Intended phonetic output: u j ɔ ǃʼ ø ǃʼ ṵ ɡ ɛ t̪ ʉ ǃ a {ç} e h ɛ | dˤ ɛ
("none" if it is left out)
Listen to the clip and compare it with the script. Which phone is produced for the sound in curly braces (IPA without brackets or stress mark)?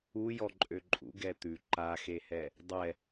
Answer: x